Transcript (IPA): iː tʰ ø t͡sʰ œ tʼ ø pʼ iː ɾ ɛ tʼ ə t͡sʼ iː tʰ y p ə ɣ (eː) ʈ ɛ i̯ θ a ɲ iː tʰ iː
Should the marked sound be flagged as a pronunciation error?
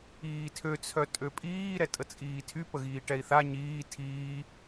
yes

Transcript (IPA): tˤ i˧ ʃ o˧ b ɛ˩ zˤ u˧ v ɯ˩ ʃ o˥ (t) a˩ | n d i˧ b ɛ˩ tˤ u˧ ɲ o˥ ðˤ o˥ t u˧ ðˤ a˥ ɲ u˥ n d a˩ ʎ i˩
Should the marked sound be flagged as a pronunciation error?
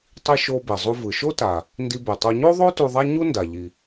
no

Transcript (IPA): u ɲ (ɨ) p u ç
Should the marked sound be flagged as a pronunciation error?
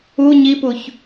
yes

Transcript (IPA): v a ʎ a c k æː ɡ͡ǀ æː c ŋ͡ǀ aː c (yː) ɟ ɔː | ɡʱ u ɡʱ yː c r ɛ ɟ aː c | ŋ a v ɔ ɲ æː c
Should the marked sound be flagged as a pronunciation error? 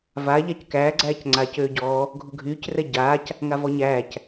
yes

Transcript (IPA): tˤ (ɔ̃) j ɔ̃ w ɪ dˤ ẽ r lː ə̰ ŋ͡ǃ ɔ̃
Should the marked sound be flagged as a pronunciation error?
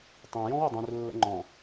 yes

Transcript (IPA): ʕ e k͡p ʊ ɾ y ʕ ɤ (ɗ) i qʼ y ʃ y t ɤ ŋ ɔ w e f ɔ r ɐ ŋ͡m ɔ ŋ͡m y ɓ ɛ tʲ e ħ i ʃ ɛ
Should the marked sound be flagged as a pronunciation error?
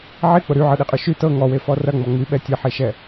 no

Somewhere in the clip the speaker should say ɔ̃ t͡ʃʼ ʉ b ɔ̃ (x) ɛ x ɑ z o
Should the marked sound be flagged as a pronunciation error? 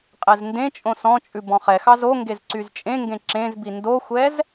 yes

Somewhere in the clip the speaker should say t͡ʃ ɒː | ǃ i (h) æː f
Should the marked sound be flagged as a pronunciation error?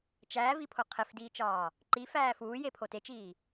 yes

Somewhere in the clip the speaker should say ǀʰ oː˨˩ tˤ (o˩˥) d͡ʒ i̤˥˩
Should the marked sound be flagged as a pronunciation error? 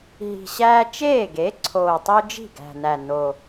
yes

